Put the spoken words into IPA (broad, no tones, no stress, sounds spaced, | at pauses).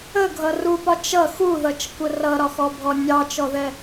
ə ɡʱ ʌ r u p ɒ t͡ʃ ʌ x u ð ʌ t͡ʃ kʷ ə r ʌ ɾ ɒ x ɔ bʱ ɔ nʲ ɑ t͡ʃ ɔ ð ɛ